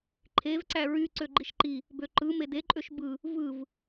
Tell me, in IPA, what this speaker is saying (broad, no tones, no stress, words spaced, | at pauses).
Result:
ǃʰevǀæ ɹy ǀøɡ͡ǃiʃǃi | bøǃɯ medeǃʼøʃ bɯ | vɯv